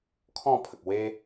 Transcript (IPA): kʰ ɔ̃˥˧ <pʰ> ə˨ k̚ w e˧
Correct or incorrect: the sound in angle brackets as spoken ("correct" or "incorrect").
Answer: correct